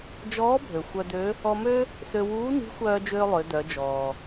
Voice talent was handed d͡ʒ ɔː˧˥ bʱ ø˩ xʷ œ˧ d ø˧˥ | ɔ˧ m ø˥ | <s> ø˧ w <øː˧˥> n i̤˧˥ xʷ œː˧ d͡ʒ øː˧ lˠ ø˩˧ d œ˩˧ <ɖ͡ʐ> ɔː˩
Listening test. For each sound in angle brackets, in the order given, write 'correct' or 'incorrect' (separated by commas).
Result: correct, incorrect, incorrect